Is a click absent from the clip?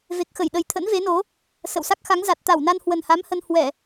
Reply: yes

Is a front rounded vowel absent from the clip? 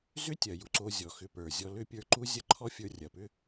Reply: no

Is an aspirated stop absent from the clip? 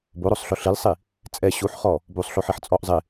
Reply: yes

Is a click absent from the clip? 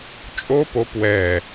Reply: yes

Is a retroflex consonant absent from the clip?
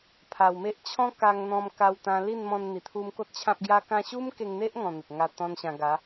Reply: yes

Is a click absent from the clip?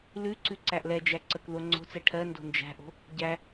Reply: no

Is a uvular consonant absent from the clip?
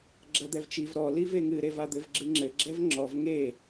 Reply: yes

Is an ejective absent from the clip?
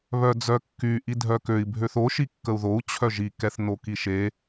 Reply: yes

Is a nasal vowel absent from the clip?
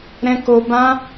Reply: no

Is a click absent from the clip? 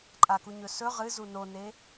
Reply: no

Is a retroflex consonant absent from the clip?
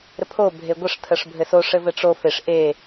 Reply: no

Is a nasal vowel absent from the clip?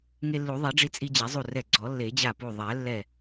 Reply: yes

